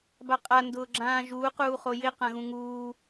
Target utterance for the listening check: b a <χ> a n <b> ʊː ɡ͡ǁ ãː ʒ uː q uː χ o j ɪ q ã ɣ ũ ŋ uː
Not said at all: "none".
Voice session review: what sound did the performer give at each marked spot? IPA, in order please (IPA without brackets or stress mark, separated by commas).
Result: qʼ, d